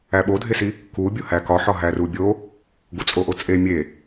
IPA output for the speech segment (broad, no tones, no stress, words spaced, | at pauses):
æɓodʱesi | ku bʲohækɒħɒ ɦærubʲo | ɡut͡sʼoʔot͡sʼe mʲe